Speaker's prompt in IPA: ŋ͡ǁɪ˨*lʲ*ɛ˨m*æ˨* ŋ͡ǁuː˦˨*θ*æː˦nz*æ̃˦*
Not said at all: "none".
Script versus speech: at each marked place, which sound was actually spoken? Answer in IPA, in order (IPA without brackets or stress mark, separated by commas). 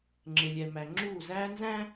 lʲ, æ˨, z, æ̃˦